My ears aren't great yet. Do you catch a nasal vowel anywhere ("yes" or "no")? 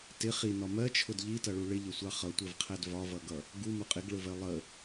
no